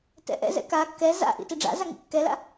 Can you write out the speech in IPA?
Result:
tɛ̰ʔɛ̰zɛ̰ ka kːɛ za̰ʔḭ tiɖ͡ʐa̰za ŋḭkːɛla̰

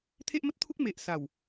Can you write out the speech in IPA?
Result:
t̪ʰe˦ʔmə˦t̚t̪ʰu˦k̚ me˨ʔsa˨˩w

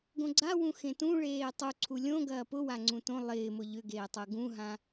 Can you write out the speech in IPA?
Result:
ɡõɡ͡ǀawũ xẽtũ ɭeːtˤuǀʰu lʲõ ɡɐːpʊwa ŋ͡ǀũtõ lˠɪːmʊ ʎʏɡeːtˤʊ ɡũɦã

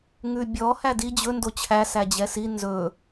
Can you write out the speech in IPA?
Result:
ŋʉbʲɔ hædi d͡ʑɵ ndot͡ɕʰæ sæd͡ʑɛsi nzɵ

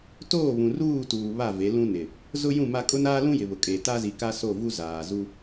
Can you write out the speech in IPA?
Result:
toː˦˨βũ˨ ruː˦˨tuː˨ βa˦˨ ve˨˦lũ˦nɪ˨ | zʊ˦jũ˦˨ma˦ kʼʊ˦naː˦lũ˦ jɪ˨βʊ˨kʼe˨ ta˦zi˨ka˦so˦˨ vu˦zaː˨zu˦

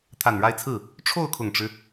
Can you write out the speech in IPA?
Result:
t̪ʰa˨˩nɻa˥˧ɪ̯t͡sʰɹ̩˥˩ | ʈ͡ʂʰo˥˩ʊ̯kʰʊ˨˩ŋʈ͡ʂɻ̩˦

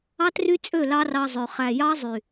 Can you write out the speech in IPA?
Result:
ɑ˦try˦t͡sʼø˦˨ lɑ˦rɑ˧zˤø˨ χæ˨jɑ˦zˤy˨

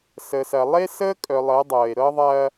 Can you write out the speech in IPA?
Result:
sə˨sɐ˨lˠe˦ sə˦kʼœ˨lˠɤ˨˦ dˤɤ˨e̯ɾɤ˦ ðˤɐ˦

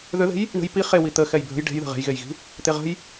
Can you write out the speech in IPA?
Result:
ðʏðe̤j | ɳə̤j pi χewi t̪ə xɛjbʱə̤j ɖe̤jðə̤ ʁe̤jɣejɣi̤ | t̪eʁə̤j

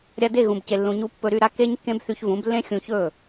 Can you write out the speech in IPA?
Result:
ɾʲa˧de˦˨ ɣũ˨bce˨lːũ˨ɲu˧ pːɵ˧ɾy˧ɾa˦ ke˦ɲkːẽ˦bθy˧ç vũ˨˦blːẽ˦xʲũ˧çɵ˦˨

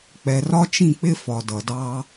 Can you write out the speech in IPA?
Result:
k͡pɛ˨rɒ˦t͡ʃĩ˦˨k͡pɪ˦ fɒ˨dʌ˨ dɑ˧

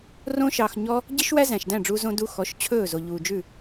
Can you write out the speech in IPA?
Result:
rõ˦ʃɑː˧xɲɔ˦ | ɟi˦ʃwæ˦ zæ̃˨ʃdæ̃˦˨ɖ͡ʐuː˧ zõ˧du˧xɔ˨˦ʃ t͡ɕʰɵː˦˨zo˨ʎuː˨d͡ʒʉ˦˨

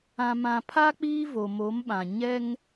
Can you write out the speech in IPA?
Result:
ã˨mã˨pʰa˦ k͡piː˦vo˨ mo˨˦mɓã˨ɲɛ˦ŋ

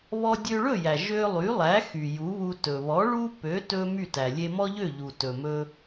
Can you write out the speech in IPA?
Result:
βɔ˧dʲø˧ɭɵ˥˩jæ˩ ʒø˧lˠy˩˥lˠæ˩˥xy˩ ju˩˥βu˧ tɵ˩βɔ˩˥ ɭu˥ pø˩˥tɵ˧ my˥˩tæ˩ lʲe˧mɔ˥ʎø˥˩ʎu˩ tɵ˩mɵ˧

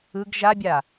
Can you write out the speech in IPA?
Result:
ɯɡ ʒabʲa

